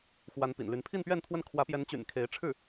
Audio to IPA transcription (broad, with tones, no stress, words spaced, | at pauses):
xwa˧˥npḭ˨˩nly˧˥n pʰi˥˧npɥɛ˥˧nt̪ʰwə˥˩n kʰwä˧˥pjɛ˧˥nt͡ɕy̰˨˩n kʰe˧˥ɪ̯ʈ͡ʂʰɻ̩˥˩